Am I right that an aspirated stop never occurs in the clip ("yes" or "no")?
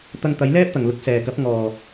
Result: yes